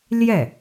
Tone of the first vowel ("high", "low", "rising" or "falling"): falling